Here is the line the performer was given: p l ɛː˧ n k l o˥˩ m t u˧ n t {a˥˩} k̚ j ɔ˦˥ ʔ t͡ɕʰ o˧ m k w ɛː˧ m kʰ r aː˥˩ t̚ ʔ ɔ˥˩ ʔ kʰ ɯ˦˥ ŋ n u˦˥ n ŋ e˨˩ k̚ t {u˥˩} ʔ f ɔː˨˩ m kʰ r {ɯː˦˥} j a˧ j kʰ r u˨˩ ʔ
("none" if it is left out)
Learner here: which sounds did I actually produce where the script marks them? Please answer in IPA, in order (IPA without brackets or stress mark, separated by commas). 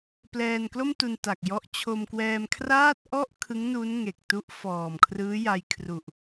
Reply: a˨˩, u˦˥, ɯː˦˥